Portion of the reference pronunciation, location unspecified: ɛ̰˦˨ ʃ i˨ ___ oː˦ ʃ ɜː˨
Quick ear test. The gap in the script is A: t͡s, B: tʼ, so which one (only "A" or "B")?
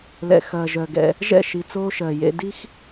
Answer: A